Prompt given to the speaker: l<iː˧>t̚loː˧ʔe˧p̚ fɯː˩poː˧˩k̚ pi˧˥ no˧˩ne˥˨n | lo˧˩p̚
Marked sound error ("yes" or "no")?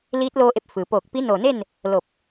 yes